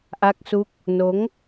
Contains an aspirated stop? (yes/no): no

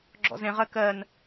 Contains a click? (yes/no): yes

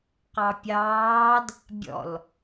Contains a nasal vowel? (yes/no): no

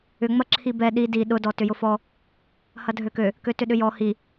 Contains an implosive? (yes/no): yes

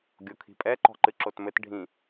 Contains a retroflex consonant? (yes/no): yes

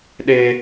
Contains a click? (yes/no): no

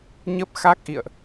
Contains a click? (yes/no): no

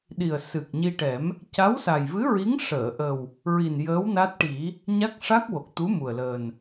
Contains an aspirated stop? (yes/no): no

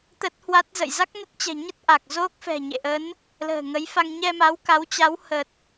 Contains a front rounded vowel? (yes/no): no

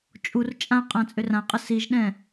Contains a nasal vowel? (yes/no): yes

